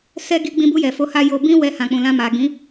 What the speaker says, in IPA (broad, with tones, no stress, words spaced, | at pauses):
sɛ˧ ɡi˧ɡ͡bĩ˧bu˧ jɛ˨fo˧ha˦ jo˧ bĩ˦ wɛ˧hã˨k͡pũ˨lã˧ ma˨ɡĩ˨˦